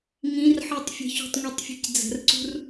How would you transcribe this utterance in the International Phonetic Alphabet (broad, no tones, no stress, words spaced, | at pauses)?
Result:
ŋĩrħɯtˤ fʲə̤çṳtˤŋʷitˤfʲe̤c d͡zə̤rǀṳr